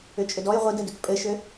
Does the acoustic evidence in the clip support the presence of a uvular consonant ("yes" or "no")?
yes